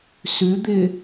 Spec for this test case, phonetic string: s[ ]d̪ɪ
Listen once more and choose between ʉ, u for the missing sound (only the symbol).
ʉ